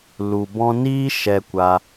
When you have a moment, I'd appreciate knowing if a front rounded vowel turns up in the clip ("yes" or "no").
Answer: no